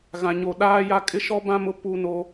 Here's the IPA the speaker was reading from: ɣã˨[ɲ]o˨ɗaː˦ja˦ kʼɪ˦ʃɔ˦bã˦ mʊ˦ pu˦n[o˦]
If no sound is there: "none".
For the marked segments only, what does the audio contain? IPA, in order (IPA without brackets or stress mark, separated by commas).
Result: ɲ, o˦